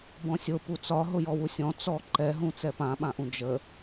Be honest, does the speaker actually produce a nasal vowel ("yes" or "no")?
yes